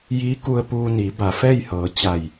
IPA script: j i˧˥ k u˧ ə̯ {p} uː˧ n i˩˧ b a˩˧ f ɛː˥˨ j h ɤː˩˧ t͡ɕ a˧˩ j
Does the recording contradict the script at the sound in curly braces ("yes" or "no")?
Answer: no